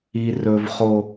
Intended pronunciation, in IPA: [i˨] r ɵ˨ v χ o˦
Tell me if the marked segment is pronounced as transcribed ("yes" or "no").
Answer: yes